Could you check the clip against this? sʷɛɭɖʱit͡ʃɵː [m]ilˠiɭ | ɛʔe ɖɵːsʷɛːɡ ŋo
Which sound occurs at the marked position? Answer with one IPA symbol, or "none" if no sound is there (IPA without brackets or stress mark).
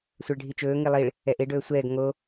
ŋ